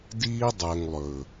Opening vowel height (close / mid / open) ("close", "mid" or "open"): close